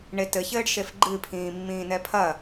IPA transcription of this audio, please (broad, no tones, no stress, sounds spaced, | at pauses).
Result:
ɳ e t ɘ ç ɘː ɖ ʃ e f ɡ͡ǃ ɨ pʰ ĩː mː ĩː n ɛ pʰ ɐ